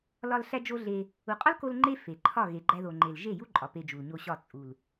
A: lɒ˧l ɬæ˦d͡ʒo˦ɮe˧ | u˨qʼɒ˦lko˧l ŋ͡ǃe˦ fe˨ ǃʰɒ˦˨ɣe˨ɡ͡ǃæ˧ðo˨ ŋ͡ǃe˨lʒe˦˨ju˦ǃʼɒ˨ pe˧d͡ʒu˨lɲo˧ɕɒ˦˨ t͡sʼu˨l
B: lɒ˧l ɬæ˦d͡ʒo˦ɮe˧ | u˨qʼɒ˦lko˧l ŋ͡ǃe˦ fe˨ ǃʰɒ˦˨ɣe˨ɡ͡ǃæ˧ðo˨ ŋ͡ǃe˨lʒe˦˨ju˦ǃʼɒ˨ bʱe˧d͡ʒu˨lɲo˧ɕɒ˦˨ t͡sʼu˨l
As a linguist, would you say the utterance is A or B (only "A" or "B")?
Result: A